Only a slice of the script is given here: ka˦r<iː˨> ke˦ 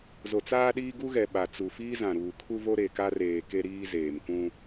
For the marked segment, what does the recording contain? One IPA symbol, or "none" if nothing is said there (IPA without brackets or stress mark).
eː˨